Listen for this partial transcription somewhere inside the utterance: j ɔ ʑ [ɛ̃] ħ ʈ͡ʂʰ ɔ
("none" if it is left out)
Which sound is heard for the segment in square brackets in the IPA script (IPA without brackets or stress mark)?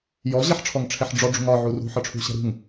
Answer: ɛ